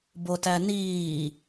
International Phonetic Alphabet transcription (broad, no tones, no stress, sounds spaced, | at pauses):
b o t æ n iː